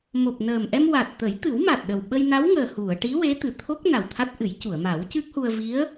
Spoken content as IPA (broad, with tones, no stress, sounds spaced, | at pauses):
m o˨˩ p̚ n əː˨˩ m ʔ ɛ˧ m w a˨˩ t̚ t̪ ə˨˩˦ j t̪ ɨ˨˩˦ w m a˨˩ t̚ ɗ ə˨˩ w ɓ ə˧ j n a˧˥ w ŋ əː˨˩ h u˨˩˨ ə̯ ʈ i˧˥ w e˧˥ t̪ ɨ˨˩ t̪ʰ o˦˥ k̚ n a˨˩ w t̪ʰ a˦˥ t̚ ʔ ɨ˨˩˦ j c u˨˩˨ ə̯ m a˨˩˦ w c ɨ˦˥ k̚ h u˧ ə̯ v i˧˥ ə̯